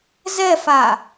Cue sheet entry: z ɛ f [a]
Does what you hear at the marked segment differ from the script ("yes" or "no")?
no